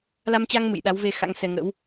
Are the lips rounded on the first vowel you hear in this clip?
no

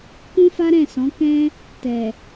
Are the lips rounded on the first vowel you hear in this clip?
yes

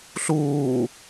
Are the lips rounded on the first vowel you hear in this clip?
yes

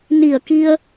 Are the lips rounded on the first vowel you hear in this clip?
no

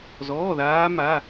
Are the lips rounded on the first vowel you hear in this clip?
yes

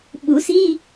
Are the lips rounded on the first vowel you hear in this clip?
yes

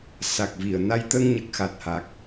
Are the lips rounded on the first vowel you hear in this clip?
no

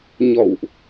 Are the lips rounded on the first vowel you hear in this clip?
yes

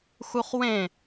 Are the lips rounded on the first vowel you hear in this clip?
yes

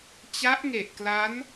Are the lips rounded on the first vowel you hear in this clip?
no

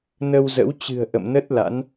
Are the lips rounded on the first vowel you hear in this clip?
no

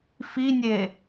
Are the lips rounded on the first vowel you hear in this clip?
no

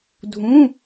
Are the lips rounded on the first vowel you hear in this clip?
yes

